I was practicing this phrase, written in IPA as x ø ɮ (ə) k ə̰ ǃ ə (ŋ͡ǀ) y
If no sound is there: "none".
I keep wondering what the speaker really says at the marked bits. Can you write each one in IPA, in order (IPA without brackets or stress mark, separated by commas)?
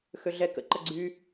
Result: ɛ, ɡ͡ǀ